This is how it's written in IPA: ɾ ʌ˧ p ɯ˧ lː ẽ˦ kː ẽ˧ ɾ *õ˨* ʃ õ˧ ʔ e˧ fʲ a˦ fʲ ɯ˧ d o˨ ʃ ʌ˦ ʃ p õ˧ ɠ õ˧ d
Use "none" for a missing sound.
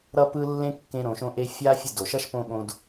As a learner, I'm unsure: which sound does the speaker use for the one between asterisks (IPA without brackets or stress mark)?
õ˨